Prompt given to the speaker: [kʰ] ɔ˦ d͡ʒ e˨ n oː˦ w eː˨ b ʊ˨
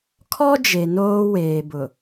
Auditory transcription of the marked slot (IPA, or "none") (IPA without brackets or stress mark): kʰ